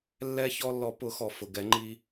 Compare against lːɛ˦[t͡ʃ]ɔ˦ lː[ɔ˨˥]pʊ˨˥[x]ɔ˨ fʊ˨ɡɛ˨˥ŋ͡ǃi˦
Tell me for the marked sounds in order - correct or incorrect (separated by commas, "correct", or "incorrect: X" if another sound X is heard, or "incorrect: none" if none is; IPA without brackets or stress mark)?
incorrect: ç, correct, correct